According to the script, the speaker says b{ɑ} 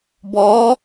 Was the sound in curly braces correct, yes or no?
no